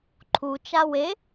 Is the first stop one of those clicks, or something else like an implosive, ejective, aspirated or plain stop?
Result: click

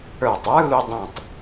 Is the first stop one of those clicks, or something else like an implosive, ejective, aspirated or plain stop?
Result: plain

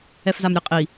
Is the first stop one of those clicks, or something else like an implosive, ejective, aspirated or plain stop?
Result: ejective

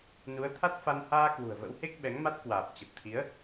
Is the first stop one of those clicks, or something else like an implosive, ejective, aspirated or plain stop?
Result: aspirated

